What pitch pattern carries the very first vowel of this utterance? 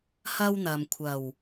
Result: high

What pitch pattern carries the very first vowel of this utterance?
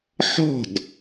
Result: falling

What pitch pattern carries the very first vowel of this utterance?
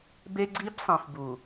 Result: high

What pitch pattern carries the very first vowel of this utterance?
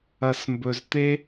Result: low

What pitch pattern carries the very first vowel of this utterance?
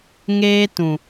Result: high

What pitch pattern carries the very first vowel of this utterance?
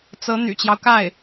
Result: rising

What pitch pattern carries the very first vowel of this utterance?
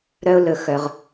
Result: high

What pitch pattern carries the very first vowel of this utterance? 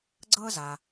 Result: high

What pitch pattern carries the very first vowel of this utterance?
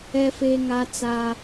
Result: high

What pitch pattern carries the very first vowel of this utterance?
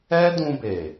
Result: high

